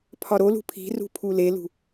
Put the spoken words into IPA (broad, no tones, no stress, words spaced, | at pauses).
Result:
pʰɒɾolṳ pʰi̤rṳ pʰulelṳ